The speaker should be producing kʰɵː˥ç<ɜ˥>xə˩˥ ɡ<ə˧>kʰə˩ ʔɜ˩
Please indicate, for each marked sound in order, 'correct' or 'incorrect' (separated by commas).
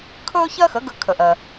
correct, correct